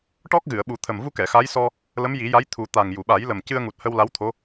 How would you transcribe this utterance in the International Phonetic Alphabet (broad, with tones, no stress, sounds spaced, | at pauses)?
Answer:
ʈ ɔ˦˥ k̚ ɣ ɨ˨˩˨ ə̯ ɓ u˨˩˦ t̪ʰ ə˨˩ m v u˧ k ɛ˨˩˨ x a˧˥ j s ɔ˧ | l ə˧˥ m j i˨˩˦ j a˧˥ j t̪ʰ u˨˩˦ t̪ a˨˩ ŋ j u˨˩˨ ɓ a˨˩˦ j l ə˨˩ m c ɨ˧ ə̯ ŋ u˨˩ t̚ h ə˧ w l a˧˥ w t̪ʰ o˧˥